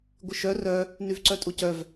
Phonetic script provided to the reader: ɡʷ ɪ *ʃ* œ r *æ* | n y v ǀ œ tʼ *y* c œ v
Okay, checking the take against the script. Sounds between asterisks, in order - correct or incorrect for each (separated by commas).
correct, incorrect, incorrect